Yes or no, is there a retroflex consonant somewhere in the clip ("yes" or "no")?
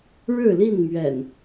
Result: yes